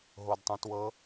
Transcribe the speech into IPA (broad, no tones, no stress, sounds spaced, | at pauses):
ɦ o d tˤ ũ t w ɤ